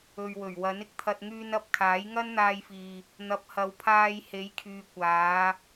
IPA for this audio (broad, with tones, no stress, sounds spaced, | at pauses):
ɵ˨ ɥ w ɵ˨˩ ɥ w ɐ˨˥ n ɪ˧ k̚ t̪ʰ ɐ˧ t̚ ŋ yː˧ n ɐ˧ p̚ kʰ aː˨˥ j ŋ ɐ˥ n n̪ aː˧ j f iː˨ | n̪ ɐ˨˥ p̚ h ɐ˨˧ w pʰ aː˧ j h e˨˥ j kʰ yː˨ kʷ aː˨˧